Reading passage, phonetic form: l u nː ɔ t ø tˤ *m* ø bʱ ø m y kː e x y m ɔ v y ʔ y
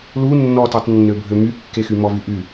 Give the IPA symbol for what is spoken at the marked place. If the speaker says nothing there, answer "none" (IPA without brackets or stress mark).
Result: nː